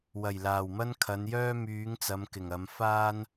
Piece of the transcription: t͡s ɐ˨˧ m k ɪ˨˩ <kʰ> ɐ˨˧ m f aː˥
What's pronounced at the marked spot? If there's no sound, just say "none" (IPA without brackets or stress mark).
ŋ